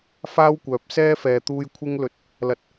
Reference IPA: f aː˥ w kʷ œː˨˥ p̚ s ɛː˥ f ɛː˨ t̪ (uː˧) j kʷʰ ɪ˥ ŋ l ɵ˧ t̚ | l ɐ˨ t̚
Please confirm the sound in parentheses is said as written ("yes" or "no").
yes